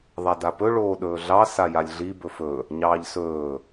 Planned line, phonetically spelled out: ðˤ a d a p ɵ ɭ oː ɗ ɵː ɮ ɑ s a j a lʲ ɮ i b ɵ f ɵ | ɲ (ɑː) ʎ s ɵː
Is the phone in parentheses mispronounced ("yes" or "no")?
no